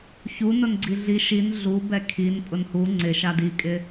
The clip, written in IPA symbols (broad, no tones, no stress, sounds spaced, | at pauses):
ç u n ʊ n ɡ͡ǀ i ɮ i ʃ i n ɮ u b ɛ kʰ i n pʼ ʊ n h u ŋ͡ǀ ɪ ʃ a d i kʼ ɪ